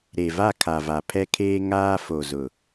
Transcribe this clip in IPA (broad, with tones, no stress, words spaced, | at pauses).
ɾe˨va˦˨ kʰa˨va˨pʰɛ˦kʰeː˦ ŋaː˦fo˨zʊ˨